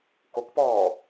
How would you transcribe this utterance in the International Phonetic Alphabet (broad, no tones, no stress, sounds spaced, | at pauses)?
k o k p ɔː